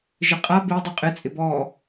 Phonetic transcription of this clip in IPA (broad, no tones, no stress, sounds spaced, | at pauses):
ʒ ɪ qʼ a b i dˤ i qʼ ɪ t͡sʼ ɪ b ɔ